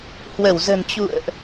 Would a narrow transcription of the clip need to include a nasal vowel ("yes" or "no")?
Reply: no